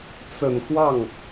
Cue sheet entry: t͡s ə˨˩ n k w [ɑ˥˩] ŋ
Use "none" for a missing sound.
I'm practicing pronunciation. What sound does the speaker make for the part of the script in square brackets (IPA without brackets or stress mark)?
ɑ˥˩